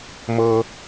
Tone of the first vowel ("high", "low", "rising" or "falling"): high